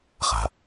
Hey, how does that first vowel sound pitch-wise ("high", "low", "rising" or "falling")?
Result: low